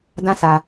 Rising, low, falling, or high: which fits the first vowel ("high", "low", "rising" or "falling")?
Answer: high